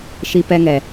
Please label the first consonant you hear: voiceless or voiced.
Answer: voiceless